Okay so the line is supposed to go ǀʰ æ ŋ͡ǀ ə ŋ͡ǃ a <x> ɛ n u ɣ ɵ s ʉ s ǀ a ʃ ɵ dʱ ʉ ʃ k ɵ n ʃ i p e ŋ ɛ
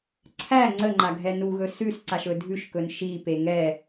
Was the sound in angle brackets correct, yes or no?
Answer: no